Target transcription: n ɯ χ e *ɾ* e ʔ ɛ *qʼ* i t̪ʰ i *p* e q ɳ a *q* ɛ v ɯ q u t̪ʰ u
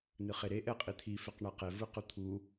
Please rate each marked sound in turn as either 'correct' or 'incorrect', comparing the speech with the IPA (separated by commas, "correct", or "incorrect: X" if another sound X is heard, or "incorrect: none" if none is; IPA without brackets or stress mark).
correct, correct, incorrect: f, correct